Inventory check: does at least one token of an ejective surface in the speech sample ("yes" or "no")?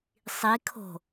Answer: no